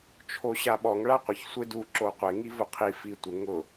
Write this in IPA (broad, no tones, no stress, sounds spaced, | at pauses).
t͡ʃʰ o ɕ a ɓ ɔ ŋ ɭ a qʷ ɪ ç sʷ e d u ǁ o qʷ e ŋ i v ʊ qʰ i f i tʷ ɪ ŋ ʊ